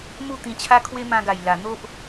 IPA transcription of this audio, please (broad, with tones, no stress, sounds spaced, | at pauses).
m u˥˧ t̪ ĩ˧ t͡ɕʰ a˦ kʰ w e˦ m ã˧ ɡ a˨˩ j l a˨˩ n̪ o˦ ʔ